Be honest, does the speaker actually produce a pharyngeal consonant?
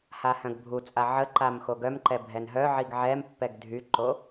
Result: yes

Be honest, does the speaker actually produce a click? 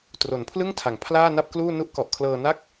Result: no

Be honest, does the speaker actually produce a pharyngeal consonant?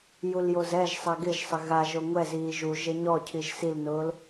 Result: no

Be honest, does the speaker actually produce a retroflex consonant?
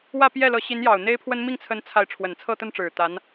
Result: yes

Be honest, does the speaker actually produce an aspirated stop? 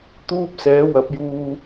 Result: no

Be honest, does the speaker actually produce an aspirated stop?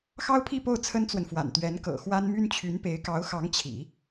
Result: yes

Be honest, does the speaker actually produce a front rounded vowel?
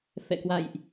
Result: no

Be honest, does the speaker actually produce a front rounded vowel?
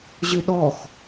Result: yes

